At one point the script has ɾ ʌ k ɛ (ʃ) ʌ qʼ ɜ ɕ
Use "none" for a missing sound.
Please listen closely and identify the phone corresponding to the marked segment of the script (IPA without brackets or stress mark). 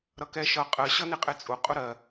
ʃ